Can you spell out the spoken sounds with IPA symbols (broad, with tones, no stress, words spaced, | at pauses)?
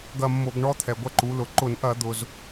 ɡɐ˦˨mːo˧˩˧ɡɳɔ˦˥ t̪ʰɛ˩ɡʷɐ˦˨ǃu˩˧lʊ˩ ǃʊ˧˩˧nʔɐ˧˩˧ d̪ʊ˩z